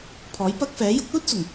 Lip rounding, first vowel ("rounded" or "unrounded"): rounded